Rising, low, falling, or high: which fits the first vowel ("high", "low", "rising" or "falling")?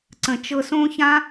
low